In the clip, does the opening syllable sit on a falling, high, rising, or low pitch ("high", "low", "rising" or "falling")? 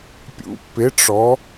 rising